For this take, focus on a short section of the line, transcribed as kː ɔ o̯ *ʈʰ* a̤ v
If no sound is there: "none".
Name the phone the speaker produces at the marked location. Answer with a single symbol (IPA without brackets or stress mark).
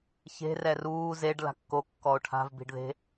ʈʰ